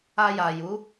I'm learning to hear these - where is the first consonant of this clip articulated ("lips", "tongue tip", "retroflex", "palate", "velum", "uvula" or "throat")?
palate